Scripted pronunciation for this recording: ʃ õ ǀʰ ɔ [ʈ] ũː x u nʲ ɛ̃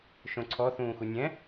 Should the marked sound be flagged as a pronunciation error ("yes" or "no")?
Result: yes